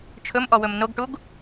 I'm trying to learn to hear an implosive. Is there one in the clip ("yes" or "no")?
no